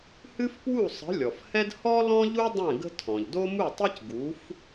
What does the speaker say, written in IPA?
hɨ˥fpwu˥˨ sˤə̤˨˥ lʲɔ˩fhɛ˥d hɔ˥ lɔ̃˥ʎu˥ dˤɛ̃˥˨ɡə̤˥ tʰɔ̃˩ʎdo˥mu˥˨tˤi˥c ɡu˨˥f

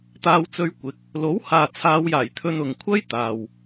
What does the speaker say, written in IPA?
t̪aː˧wt͡sɵ˧ɥkʷɪ˨˥k̚ | lo˨˥whaː˨ t͡sʰaː˨˧wjaː˨˩j t̪ʰɵ˧nʊ˨ŋ kʷʰɐ˥jt̪aː˨w

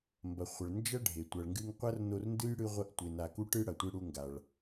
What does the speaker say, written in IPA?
mbɐ˩χʷɐ˩ɭ nd͡ʒɐ˥ɖʱe˩ tʷɐ˩ɭŋɡɨ˧ŋ qʷɐ˥rno˧rndɨ˥j ɽɨ˧ʁʷɐ˧ʔtʷe˩ na˩ku˧ʈɨ˧ ɽɐ˩tʷɨ˧ɽu˧ŋɡa˩ɭ

